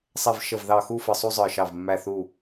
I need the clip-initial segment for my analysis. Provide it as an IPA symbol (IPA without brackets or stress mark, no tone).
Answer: sˤ